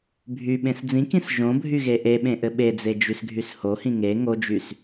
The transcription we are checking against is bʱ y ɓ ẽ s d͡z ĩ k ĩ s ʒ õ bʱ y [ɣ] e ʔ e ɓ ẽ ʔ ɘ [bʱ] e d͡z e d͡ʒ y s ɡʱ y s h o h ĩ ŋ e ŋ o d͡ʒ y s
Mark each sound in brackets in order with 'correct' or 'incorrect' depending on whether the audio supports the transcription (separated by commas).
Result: correct, incorrect